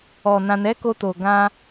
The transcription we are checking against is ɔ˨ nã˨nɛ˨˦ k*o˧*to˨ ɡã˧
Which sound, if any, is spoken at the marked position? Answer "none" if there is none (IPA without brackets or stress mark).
o˧